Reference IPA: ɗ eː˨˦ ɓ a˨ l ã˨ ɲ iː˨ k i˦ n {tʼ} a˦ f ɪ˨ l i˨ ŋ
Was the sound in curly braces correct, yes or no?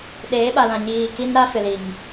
no